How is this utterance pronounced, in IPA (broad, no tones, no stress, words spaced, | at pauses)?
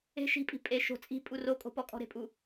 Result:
e̤ ʃi̤pʼi̤ pʼe ʃo̤ t͡sʼi̤ pʼurokʼo̤pɔ kʼɔ̤ɾe̤pʼu